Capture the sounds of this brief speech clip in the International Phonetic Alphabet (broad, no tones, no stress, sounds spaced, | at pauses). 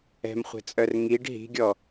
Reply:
ɛ̤ m χʷ ɛ̤ t͡sʼ œ r ŋ i ɖ ɦ i̤ ɡʲ ɔ